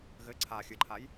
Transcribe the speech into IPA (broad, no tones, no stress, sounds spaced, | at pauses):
ɣ ɘ ǀʰ a xʲ ɨ ǃʰ a j